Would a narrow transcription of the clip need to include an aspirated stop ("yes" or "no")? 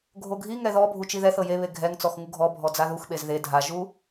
no